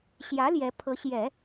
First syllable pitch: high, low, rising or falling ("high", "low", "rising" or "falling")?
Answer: rising